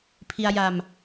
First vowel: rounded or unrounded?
unrounded